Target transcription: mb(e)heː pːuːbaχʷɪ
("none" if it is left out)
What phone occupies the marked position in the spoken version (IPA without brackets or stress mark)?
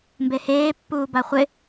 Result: e